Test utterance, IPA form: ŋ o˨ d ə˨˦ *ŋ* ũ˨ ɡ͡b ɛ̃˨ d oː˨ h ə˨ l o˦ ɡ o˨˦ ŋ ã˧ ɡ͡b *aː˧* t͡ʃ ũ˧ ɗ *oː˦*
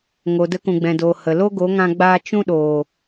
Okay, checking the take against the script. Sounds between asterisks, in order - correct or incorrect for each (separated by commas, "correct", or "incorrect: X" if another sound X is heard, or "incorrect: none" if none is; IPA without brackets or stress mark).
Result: incorrect: k, correct, incorrect: oː˨